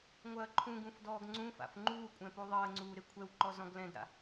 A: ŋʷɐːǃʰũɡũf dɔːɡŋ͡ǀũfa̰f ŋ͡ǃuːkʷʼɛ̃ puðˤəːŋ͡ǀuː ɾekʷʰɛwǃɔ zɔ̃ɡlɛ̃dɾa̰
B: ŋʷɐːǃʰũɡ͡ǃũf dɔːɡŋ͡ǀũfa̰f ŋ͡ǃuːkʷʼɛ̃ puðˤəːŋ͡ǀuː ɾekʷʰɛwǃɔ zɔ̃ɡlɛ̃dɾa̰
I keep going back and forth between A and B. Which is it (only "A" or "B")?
A